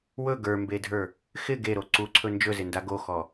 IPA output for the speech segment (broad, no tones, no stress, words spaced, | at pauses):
wɵ ɡə˞mbedʱə˞ | xɪ ɡeɾo ǀuǀʰɵ nd͡ʒɵzɪnda ɡoxɔ